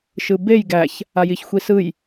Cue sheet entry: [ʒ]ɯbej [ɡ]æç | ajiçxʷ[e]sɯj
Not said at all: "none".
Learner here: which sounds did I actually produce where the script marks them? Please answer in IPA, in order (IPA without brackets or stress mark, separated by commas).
ʃ, ɡ, i